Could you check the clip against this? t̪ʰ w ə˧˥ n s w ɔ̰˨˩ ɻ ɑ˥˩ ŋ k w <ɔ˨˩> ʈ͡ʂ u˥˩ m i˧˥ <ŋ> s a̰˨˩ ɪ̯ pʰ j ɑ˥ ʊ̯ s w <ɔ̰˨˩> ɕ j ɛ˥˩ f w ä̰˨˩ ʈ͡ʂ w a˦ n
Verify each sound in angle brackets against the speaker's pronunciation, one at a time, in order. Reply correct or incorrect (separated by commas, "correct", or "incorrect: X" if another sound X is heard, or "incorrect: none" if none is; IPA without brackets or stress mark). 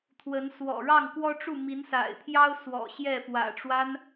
incorrect: ɔ˥, incorrect: n, correct